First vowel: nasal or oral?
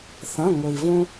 nasal